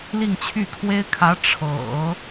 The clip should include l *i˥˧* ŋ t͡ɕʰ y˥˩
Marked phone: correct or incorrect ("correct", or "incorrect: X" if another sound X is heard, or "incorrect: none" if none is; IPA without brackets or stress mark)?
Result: correct